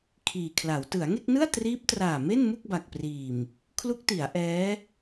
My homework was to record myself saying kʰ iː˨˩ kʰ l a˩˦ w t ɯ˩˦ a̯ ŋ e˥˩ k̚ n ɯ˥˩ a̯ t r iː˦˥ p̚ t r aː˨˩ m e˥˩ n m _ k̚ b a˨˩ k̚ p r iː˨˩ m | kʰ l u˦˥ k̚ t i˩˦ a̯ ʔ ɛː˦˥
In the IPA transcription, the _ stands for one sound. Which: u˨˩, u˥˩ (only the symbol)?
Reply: u˥˩